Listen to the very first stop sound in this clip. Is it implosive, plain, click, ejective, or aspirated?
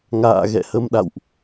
implosive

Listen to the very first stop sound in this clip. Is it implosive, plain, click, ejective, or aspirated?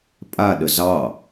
ejective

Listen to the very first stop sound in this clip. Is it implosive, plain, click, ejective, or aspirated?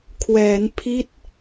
aspirated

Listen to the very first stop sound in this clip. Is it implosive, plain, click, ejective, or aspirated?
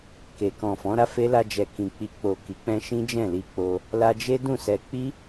plain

